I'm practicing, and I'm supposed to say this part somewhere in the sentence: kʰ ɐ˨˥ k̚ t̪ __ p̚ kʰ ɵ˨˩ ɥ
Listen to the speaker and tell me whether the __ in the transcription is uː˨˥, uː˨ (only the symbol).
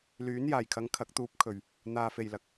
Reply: uː˨˥